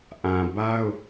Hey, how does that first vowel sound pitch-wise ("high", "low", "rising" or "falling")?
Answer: low